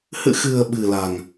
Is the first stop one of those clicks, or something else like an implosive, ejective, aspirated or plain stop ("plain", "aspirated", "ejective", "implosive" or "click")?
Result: implosive